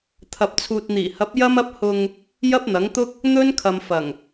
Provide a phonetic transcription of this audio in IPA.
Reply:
t̪ʰ ɐ˧ p̚ t͡sʰ uː˧ t̚ n̪ iː˨˩ h ɐ˨˥ p̚ j ɐ˥ m ɐ˥ p̚ h ʊ˧ ŋ | j ɐ˥ p̚ n̪ ɐ˨˥ ŋ t̪ ʊ˥ k̚ | n̪ ɵ˥ n kʰ ɐ˨ m f ɐ˨˩ ŋ

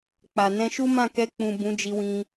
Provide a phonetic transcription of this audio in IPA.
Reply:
k͡p a˨ n ɛ̃˧ ʃ u˦ m ã˦˨ k ɛ˧ k͡p ũ˨ b ũ˨˦ d͡ʒ i˧ w ĩ˧

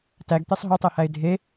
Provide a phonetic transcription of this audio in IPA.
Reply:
t æ ɡ t̪ e sˤ ɦ ɵ tˤ e h æ ɪ̯ dʱ e

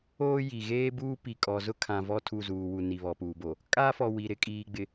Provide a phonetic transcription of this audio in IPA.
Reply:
oː˦ j i˨ ɣ eː˦ b uː˦ p i˨ kʼ ɔ˨ z ʊ˦ kʰ ã˨ v ɔ˦˨ tʰ u˦˨ z uː˨ w u˨ n i˨ β ɔ˨ p uː˨ b o˨ | kʼ aː˦ f ɔ˨ w i˨ ɾ ɪ˨˦ kʼ iː˨ ɡ͡b ɪ˨

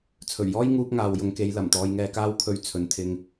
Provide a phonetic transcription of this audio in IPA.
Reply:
t͡sʰ ɵ˨˩ ɥ j ɔː˥ j ŋ uː˧ p̚ ŋ aː˨ w j ʊ˨˧ ŋ k e˨˧ j l ɐ˨˩ m t̪ ɔː˧ j ŋ ɛː˧ k aː˥ w kʰ ɵ˧ ɥ t͡sʰ ɵ˨˥ n t̪ʰ ɪ˧ ŋ

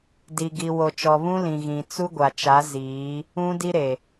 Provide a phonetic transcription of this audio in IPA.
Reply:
d i˨ ɡ i˨ w o˨ t͡ʃ ɔ˨ β ũ˦ l ĩ˨ ɣ ĩ˨ t͡s u˦ ɡʷ a˨ t͡ʃ a˨˦ z iː˨˦ | ũ˦ d i˦ ɾ e˨

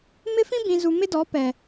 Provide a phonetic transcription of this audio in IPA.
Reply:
m ɪ˦ f ĩ˦ b ĩ˨ z u˨ m ɪ˦ d ɔ˨˦ p ɛ˨

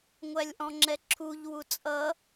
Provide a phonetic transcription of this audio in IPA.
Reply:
ŋʷ æ lʲ ʔ ɔ̃ ŋ͡ǁ ɛ ǁʰ u ʎ w u t͡sʼ ʌ

